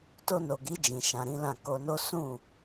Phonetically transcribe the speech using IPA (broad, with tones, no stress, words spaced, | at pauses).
to˧no˨ɡi˨˦ d͡ʒĩ˧ʃã˧ɾĩ˦lã˦˨ ko˧no˦ sũ˦˨